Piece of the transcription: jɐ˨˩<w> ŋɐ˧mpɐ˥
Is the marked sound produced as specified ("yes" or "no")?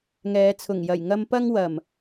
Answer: no